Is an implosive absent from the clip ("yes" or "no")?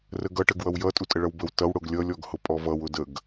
yes